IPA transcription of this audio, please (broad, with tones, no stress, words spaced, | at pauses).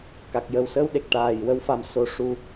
ka˨˩k̚jə˨˩wsəː˧wɗe˨˩k̚ ʈaː˨˩j wə˧wfa˨˩m so˨˩˦ʂu˨˩